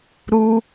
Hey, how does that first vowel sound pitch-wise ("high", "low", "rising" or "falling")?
high